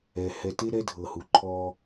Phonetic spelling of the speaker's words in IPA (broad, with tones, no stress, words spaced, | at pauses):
ɛ˨ hɛ˨te˦ ɾɛ˦dʱɤ˨hu˨ ǃʰɔ˦